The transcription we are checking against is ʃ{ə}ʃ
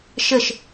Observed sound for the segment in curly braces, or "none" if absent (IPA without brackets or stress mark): ə